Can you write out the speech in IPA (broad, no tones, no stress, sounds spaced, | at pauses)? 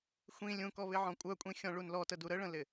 xʷ ĩ lʲ ũ k ɔ β ɪ ʕ ɔ̃ kʷʼ œ kʷʼ ĩ xʲ ɔ̃ ɭ u n l ɔ t ə d u ɾ ə ɭ ə̃ l ɪ